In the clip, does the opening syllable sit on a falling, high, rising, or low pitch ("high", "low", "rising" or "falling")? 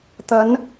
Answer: rising